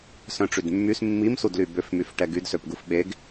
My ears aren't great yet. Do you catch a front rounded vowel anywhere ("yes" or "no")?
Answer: yes